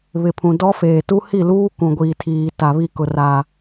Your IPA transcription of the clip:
β ɪ˨ pʰ ũ˨ d ɔ˦ f eː˨ t u˦ h i˦˨ l uː˦ k ũ˨ ɡʷ iː˨ tʰ iː˨ t a˨ β i˦˨ k ʊ˨ r a˨

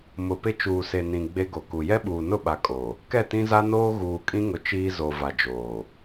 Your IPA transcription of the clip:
m ʊ˨ p ɪ˦ t͡ʃ uː˨ s e˨ n ĩ˨ ɡ͡b e˦ ɡ o˨ k u˨ j ɛ˦ ɓ uː˨ n ʊ˦˨ ɓ a˨ kʼ o˨ | k ɛ˦˨ t ĩ˦ z a˦ n oː˦ ɣ uː˨ kʼ ĩ˦ ŋ ʊ˨ t͡ʃ iː˦ z o˨ v a˨ d͡ʒ oː˨

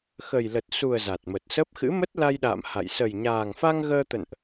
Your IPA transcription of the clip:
x ə˨˩ j l ə˨˩ t̚ s u˨˩ ə̯ z a˨˩ t̚ m ə˨˩ t̚ s ə˦˥ p̚ x ɨ̰˧˥ m ə˦˥ t̚ l a˧ j ɗ a̰ː˧˨ m h a̰˧˨ j s ə˨˩ j ɲ aː˨˩ ŋ f a˧ ŋ ɣ əː˧ t̪ ə̰˧˨ n ʔ

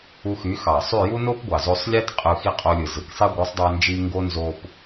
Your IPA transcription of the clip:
u˧ x y˨˦ x ɑ˨ sˤ y˦˨ j u˦ n o˦ p ɡʷ ɑ˨ z o˧ sˤ lʲ e˦ t qʼ ɯ˧ x i˦ qʼ o˧ lʲ ɯ˨ z ɯ˨ k sˤ i˦ ɡʷ ɯ˨˦ sˤ dˤ æ˧ n d͡ʒ i˧ ŋ ɡ o˦ n z o˧ p

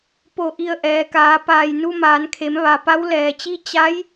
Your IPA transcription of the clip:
p o˧˩ ʔ i˧˩ ə̯ ʔ ɛː˩ k aː˩˧ p aː˧˩ j n u˧ m aː˩˧ n kʰ e˩˧ m ʋ a˩ p a˧˥ w l ɛː˩ t͡ɕ i˥˨ t͡ɕ a˧˥ j

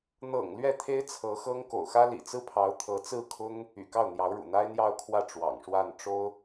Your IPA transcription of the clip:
n̪ ɤ̰˨˩ ŋ l ɥ ɛ˥˩ t̪ʰ e˥ ɪ̯ t͡sʰ ɤ˧˥ x ɤ˥ ŋ k o̰˨˩ ʊ̯ x ä˥ l ḭ˨˩ t͡s ɹ̩˥ pʰ ɑ˧˥ ʊ̯ t̪ʰ ɤ˧˥ t͡s ɹ̩˥˩ kʰ ʊ˥ ŋ | y̰˨˩ k ɑ˥˩ ʊ̯ n̪ j ɑ˧˥ ʊ̯ ɻ ṵ˨˩ n̪ a˥ ɪ̯ n̪ j ɑ˥˧ ʊ̯ kʰ w ä˥˩ ʈ͡ʂ w ɑ̰˨˩ ŋ ʂ w a˥˩ n ʈ͡ʂ o˥ ʊ̯

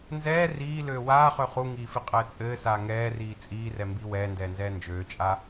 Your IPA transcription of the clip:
n z ɛː r iː l øː w aː χ ø χ u ŋ iː f i qʼ ɘː t͡sʼ ɘː s aː ŋ ɛː r iː t͡sʼ iː r ɛ m b i w ɛː n d ɛː n z ɛː n d͡ʒ øː t͡ʃʼ a

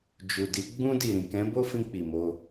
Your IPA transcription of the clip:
d͡ʒ u˨ d i˨˦ ɡ͡b ũ˧ d i˨ ɾ ĩ˨ k ɛ̃˨˦ b o˦ f ĩ˧ k͡p i˨ m o˧

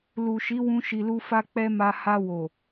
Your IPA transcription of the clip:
l u˨ ʃ i˨˦ w ũ˧ ʃ i˨ l u˧ f a˧ k͡p ɛ˧ m a˧ h a˧ w o˨

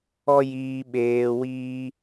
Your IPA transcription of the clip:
ɔ˦ j iː˧ ɓ eː˧ w iː˦

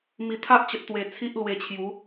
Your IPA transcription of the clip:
m i˨˩ t̪ʰ a˦ ʔ t͡ɕ ə˨ t̚ t̪ w e˨˩ t͡sʰ i˦ ʔ l w e˧ t͡ɕʰ j u˨˦

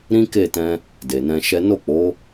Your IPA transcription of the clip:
ɾ ĩ˦ k e˦˨ t ɛ̃˧ | d e˨ n ɛ̃˧ ʃ ɛ˦ n o˦˨ k͡p o˨˦

